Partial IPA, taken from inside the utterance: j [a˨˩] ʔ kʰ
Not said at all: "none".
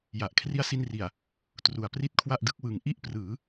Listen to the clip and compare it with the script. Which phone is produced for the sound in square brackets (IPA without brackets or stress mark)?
a˨˩